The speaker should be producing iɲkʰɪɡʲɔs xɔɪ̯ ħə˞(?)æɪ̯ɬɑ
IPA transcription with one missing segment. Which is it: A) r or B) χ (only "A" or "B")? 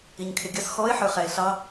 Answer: B